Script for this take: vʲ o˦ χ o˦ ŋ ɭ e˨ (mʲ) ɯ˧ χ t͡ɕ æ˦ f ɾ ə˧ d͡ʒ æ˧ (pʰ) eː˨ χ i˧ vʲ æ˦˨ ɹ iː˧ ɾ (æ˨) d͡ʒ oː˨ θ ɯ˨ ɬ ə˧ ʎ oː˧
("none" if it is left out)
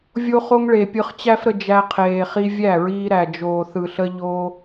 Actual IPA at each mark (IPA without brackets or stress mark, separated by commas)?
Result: pʲ, qʰ, æ˨